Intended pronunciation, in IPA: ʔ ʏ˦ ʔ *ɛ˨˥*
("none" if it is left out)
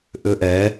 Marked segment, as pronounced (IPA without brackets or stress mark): ɛ˨˥